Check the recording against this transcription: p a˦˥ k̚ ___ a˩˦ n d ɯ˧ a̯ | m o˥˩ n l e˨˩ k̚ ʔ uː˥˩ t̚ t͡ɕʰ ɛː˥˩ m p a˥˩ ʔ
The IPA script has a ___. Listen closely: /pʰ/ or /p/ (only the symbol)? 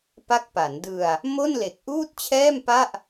p